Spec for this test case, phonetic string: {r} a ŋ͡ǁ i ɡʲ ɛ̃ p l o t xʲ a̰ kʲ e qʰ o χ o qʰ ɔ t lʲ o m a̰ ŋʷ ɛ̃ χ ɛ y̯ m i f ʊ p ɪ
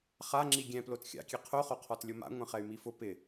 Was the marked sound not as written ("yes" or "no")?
yes